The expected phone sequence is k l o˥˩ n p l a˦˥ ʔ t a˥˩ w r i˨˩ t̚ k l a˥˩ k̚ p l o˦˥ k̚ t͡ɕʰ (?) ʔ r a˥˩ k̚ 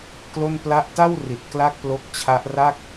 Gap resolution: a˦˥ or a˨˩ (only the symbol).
a˦˥